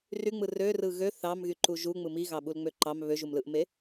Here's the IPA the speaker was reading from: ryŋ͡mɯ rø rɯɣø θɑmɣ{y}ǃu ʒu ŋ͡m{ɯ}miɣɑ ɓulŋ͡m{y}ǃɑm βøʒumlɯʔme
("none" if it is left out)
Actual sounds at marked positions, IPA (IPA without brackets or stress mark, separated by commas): y, ɯ, ø